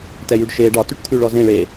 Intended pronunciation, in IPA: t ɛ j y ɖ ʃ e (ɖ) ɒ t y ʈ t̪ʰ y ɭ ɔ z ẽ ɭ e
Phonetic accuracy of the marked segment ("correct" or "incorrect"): correct